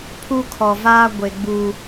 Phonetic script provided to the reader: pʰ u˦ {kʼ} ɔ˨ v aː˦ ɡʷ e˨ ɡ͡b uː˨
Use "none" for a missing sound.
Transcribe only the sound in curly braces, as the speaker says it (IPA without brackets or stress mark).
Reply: kʰ